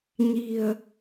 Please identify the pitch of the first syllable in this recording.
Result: low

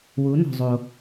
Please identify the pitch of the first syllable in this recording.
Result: rising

